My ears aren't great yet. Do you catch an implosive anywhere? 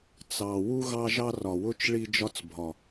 no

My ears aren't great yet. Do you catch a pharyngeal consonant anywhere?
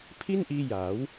no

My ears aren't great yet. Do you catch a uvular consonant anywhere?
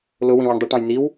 no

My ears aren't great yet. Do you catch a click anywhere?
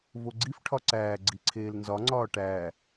yes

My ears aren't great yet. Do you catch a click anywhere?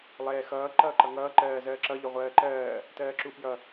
yes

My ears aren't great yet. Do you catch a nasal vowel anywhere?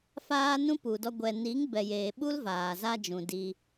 yes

